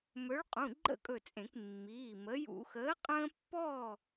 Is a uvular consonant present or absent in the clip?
present